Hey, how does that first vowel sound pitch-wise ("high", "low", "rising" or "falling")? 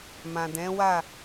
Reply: low